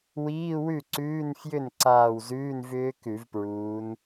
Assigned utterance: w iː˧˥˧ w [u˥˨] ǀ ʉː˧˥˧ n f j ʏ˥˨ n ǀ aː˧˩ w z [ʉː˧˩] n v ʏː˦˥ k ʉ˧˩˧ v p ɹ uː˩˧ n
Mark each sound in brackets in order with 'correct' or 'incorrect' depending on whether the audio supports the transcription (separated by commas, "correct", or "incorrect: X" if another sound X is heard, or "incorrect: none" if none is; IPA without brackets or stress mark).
incorrect: ʉ˥˨, incorrect: ʉː˧˥˧